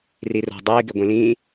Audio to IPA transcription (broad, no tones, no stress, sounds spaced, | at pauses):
r i r o̤ dˤ iː ɡ e ɡʷ ĩ l ĩː